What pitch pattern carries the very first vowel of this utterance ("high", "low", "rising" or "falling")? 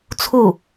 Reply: falling